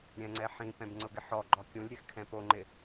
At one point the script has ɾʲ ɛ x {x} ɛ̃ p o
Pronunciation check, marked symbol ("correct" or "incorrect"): incorrect